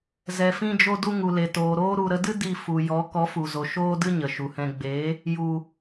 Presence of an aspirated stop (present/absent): absent